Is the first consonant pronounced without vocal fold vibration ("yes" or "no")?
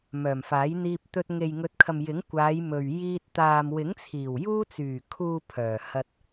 no